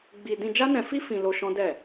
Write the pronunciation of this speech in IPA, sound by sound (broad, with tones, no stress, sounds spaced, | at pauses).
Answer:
ɡ͡b i˧ d ĩ˧ d͡ʒ a˦ n ɛ̃˧ f i˦ f ĩ˧ l o˧ ʃ ɔ̃˦ d ɛ˦˨